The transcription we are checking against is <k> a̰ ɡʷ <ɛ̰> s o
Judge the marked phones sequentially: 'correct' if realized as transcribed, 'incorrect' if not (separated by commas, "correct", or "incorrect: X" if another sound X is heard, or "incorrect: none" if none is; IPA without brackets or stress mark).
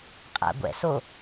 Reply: incorrect: qʼ, correct